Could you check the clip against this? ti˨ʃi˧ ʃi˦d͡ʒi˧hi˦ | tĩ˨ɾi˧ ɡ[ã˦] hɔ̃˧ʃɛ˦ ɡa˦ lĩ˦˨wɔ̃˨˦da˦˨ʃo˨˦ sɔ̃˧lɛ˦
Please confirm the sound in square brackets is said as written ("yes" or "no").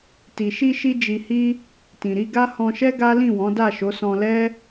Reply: no